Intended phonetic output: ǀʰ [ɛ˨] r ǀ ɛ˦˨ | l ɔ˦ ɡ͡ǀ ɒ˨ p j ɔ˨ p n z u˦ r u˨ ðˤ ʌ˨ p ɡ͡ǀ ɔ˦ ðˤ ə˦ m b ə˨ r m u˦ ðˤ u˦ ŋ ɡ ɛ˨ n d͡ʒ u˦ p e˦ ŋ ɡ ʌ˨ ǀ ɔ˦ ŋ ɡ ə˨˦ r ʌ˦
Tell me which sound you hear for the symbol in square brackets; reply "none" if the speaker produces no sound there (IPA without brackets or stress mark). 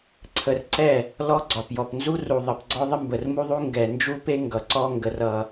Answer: ə˨